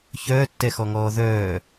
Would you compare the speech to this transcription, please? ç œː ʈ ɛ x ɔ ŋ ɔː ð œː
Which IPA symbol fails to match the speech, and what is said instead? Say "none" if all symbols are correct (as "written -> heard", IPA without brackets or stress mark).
ʈ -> tː